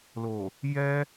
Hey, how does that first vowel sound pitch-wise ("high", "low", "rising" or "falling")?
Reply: low